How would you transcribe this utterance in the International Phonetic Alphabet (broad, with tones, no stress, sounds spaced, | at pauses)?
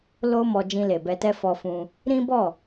l o˦ m ɔ˧ d͡ʒ ĩ˧ l e˨ b ɛ˧ t ɛ˦ f ɔ˧ f ũ˧ | ɾ ĩ˦ b ɔ˦˨